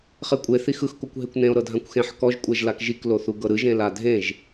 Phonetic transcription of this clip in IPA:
χekʷʼe θixɯx kokʷɦekʷnẽo̯ ɾɤdʱãkʷxẽħ kɔʒ kʷʼɛʒlakʒik loθuɡɤɾɯ ʒẽladʱẽʒ

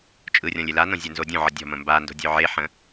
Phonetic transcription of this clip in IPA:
t͡ʃʼɯrʲɔ̃lʲ elanõ zʲə˞nzodʲõʕə dʲɔ̤ mə̃mbando̤ dʲɵʕeħə̃

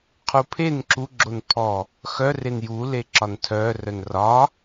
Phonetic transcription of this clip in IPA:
qʰupʰen ǁu ɡ͡ǁonpʰɔ | xœ renju leǁɒntʰœ rœnrɒ

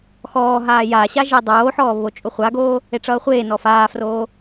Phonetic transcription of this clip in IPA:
xɔːɦaː jaɕa ʒedˤoːħɔː βot͡ʃʼoχʷaɡoː | eʈ͡ʂʌːχʷeːnɔ faːfroː

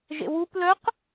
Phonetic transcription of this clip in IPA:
ʒḛwup lœq

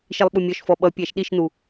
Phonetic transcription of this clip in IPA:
ʃilˠɓumʲɔʃfɔ ɓʌpʲæʃ ɗiʃnu

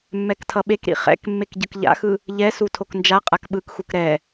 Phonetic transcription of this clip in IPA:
mːɛktʰʌɓekɾḭ χɛ̰k mːekɟɯkʎa̰xɯ | ʎɛsu tʰoknd͡ʒaqʼak ɓɯkxuk ɾɛ

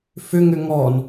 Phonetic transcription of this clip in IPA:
fʏ ŋʏŋɔn

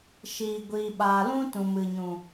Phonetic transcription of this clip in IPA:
ʃiː˨ɡʷiː˨ɓaː˨ lũ˦ tũ˨mɨ˨ɲũ˨

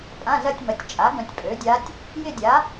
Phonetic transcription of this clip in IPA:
pʼã˧˥˧zɐ˥˧tʲmɐ˩˥tʲt͡ʃʼa˩˥ ɡœ̃˨tʲpʼø˩˥dʲa˧˥tʲ | jɪ˥˧dʲa˩˥

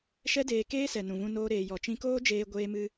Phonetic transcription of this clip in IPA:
ʃɛ˦deː˧keː˦sɛ˨ nũ˨ vũ˧noː˧ɾeː˨ jɔ˨t͡ʃĩ˧koː˦d͡ʒeː˧ ɡʷeː˦mɨ˦

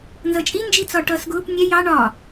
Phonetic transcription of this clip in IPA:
nzʌt͡ʃʼi nd͡ʒit͡sɒʈʌːsɡʊːp nʲɛ jɑ ɳɒ

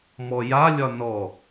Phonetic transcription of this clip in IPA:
mɔjalʲɒ nɔ

